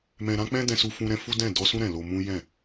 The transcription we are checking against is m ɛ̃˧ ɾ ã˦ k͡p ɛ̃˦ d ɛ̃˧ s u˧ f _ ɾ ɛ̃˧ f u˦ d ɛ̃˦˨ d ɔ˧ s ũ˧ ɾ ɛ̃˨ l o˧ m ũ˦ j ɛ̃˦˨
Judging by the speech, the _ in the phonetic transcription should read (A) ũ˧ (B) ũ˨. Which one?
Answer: A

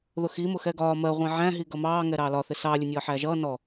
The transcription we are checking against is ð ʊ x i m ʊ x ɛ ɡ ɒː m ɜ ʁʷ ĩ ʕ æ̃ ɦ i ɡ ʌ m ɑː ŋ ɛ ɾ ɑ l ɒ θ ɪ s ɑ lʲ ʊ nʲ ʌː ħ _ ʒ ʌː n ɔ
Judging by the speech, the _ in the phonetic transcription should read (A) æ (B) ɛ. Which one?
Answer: A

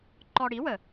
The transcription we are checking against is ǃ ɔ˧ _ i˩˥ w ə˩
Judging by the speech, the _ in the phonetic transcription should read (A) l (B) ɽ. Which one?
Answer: B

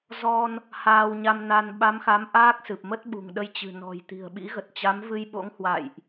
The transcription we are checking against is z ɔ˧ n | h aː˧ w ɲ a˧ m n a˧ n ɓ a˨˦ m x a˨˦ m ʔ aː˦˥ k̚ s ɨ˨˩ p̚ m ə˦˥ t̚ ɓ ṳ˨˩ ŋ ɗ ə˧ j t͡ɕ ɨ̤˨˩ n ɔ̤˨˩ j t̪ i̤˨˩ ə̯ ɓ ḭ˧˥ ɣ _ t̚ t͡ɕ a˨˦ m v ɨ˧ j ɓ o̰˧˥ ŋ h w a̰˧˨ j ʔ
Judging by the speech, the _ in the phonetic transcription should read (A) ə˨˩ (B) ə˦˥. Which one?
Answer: A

